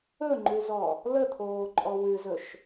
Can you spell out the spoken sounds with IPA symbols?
ɵ ŋ͡ǃ ʉ z ɔ | l ə t̪ʰ oː ǃʼ ɔ w ʉ z ɵ ʃ

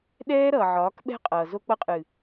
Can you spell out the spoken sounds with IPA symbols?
ɗ ɛː˦ ɾ ʌː˨ ʕ ɒː˨˦ k ɓ ɛ̤˦ qʼ ʌː˨ z o˧ k͡p ʌ˧ qʼ ɨː˨

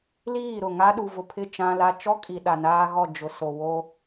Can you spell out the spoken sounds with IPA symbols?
l iː˦˨ ɾ ʊ˦˨ ŋ a˦ ɗ u˨ v ʊ˨ pʰ ɪ˦˨ t͡ʃ ã˦ l a˦ t͡ʃ ɔ˦ kʼ i˨ ɗ a˨ n aː˦ ɣ ɔ˦˨ d͡ʒ ʊ˨ s o˨ w o˦

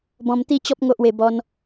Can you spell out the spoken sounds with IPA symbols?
b ɔ̃˧ m t̪ i˦ t͡ɕ ɔ˦ p̚ ŋ o˦ ʔ w e˧ b ɔ˦ n

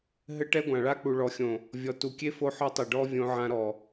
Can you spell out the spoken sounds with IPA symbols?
ɦ ɘ˦ ʈ ɛ˦ ɡʷ ã˨ ɭ a˦ k͡p u˨ ɭ ɔ˨ xʲ õ˨ | vʲ ɔ˨ t u˨ kʲ e˦ f o˦ ħ ɔ˦ tˤ i˨ ɖ ɔ˦ vʲ õ˦ ʕ ã˦ ɾ ɔ˨

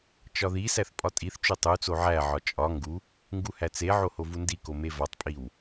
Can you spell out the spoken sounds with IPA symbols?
t͡ʃ ɒ ð i s æ θ pʼ ɒ tʼ i θ t͡ʃ u tˤ u t͡s o ʕ æ ʕ ɒ t͡ʃʼ ɒ ŋ ɡ u | ŋ ɡ u h æ t͡s e ʕ o h o v u n d i k o m e v ɒ tˤ pʼ i w

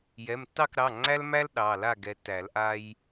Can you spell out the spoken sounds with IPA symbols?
j ɛ˩˧˩ m tː ɑ˥˨ k ɾ ɑ˩˧˩ ŋ͡ǀ æ˦ l m æ˦ l ɗ ɑ˩˧˩ l a˥˨ ɡ ɛ˨˦ tː æ˨˩˦ l ʔ a˦ j

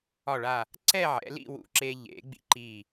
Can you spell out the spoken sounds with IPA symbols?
ɒ˧˩ ɭ a˧˩ | ǀ ɛ˥˧ ʕ ɛ̰˩˧ l ḭ˥˧ w ṵ˧˩ ǁ e˧ ʎ ḛ˩˧ ɡ͡b ḭ˧ ǃ i˧˩

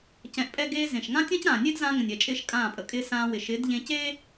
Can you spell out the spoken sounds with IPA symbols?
c ɛ̃˧ ʔ pʼ ɛ˦ ɡ eː˧ z ẽ˨ ʃ ŋ ã˦ tʲ ã˦ c ɾ ãː˨ nʲ e˦ d z ã˧ ŋ ə̃˨ nʲ ɛ˨ t͡ʃʼ ɪː˧ ʃ kʼ ãː˦˨ pʼ ə˨ kʼ ɪː˦ s ãː˧ w ɪ˨ ʃ ɪ˨˦ d ʎ ẽ˧ c eː˦

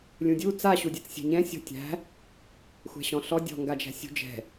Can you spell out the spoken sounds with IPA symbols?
lʲ ũ dʲ u t͡s a ɕ u dʲ ɛ t͡s sʲ ɛ̤ ɲ ɛ̃ sʲ ɔ̤ tʲ æ̤ | xʷ ɛ̤ ɕ ɔ̃ ɬ ɔ dʲ ɔ̤ ŋ ɡ a d͡ʒ æ̤ sʲ ṳ d͡ʒ ɛ̤

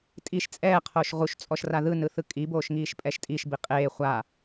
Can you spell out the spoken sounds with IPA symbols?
tʼ i ʃ t͡sʼ ɛː qʰ oː ʃ ʁ u ʃ t͡sʼ ɔ ʃ r a ð ɯ n ɯ θ ɯ kʼ i b oː ʃ ŋ iː ʃ pʼ ɛ ʃ tʼ i ʃ b i qʼ eː χʷ a

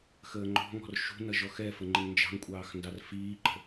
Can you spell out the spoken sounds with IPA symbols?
x əː ŋ͡ǃ ɔ̤ ŋ ɔ̤ r ʃ ṳ n ʌ ʒ ɔ x ɛ f ə ŋ͡ǃ ɪ ŋ n d͡ʒ ɑ̤ ŋ kʷʼ ɑː x n d ɑ r f iː ǃ ə̤

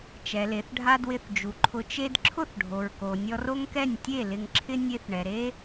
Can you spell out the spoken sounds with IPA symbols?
t͡ʃ ɛ˨ l e˨ θ ɖʱ a˧ d w ɪ˧ θ d͡ʒ u˨ ǃʰ ʊ˧ t͡ʃ e˦ d ǁʰ ʊ˦˨ θ ɖʱ o˨ ɹ k o˨ nʲ ɔ˧ r o˦ ŋ k ɛ˦˨ nʲ tʲ e˦˨ l ɪ˧ ŋ ǁʰ ɪ˦ nʲ e˦ θ ɳ ɛ˨ ɾ e˦

